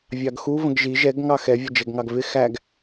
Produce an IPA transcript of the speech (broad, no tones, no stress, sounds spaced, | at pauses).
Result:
vʲ ɑ ɡ x u v ə̃ ɡ ʒ i ʒ ɛ ɡ ŋ ɑ x ɛ vʲ ʌ d͡ʒ ɛ ɡ ŋ ɑ ɡ v ɪ x æ ɡ